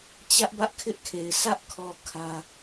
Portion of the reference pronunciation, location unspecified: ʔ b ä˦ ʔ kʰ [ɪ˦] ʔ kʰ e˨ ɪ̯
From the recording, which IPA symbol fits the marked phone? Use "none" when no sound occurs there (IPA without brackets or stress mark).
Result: ɪ˦